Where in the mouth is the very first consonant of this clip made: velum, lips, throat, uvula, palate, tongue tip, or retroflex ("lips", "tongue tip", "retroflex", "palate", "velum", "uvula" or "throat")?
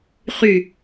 uvula